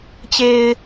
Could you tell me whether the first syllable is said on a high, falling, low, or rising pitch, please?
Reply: low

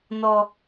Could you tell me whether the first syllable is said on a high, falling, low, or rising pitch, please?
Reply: high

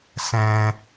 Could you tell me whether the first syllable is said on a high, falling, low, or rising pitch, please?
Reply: high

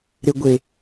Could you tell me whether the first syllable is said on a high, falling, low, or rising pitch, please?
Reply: low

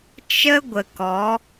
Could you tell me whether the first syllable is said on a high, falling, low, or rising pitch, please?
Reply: high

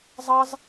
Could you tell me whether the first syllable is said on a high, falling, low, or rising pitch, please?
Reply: high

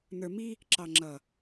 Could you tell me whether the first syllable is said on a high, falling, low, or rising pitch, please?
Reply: low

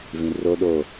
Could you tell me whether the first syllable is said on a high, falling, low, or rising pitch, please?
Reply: low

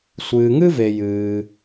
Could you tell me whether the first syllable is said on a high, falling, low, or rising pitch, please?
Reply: low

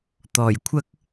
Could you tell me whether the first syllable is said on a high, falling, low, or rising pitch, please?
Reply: low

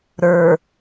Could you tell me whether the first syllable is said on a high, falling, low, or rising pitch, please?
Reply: low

